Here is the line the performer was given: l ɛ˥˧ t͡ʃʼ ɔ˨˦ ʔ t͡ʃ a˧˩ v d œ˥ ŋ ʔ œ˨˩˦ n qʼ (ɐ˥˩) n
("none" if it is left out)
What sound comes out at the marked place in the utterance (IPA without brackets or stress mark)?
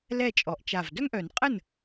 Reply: ə˥˩